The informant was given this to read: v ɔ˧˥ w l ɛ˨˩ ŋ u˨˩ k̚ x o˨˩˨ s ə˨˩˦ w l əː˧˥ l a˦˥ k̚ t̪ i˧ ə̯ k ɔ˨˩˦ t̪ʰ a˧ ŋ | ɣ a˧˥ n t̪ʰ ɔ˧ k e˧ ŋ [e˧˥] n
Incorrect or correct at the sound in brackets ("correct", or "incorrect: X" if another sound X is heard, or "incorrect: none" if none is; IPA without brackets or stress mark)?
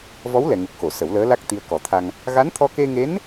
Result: correct